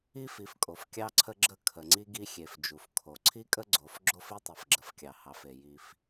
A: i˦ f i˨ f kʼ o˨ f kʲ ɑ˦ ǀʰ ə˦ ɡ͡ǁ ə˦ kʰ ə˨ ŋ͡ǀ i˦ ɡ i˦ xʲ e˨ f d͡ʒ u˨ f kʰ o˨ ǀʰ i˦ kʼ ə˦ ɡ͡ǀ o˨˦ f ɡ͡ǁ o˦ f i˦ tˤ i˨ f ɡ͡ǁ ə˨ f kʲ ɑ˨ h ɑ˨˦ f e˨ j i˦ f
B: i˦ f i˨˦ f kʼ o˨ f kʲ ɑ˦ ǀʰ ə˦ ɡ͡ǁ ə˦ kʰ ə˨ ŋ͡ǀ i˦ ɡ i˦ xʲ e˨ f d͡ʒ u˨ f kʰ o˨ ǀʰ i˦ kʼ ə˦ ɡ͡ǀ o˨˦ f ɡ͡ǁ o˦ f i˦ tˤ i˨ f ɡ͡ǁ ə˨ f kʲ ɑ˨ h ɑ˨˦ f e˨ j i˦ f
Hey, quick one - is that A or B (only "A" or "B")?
B